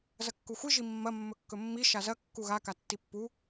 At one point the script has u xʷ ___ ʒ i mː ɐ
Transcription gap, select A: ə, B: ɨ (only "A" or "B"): B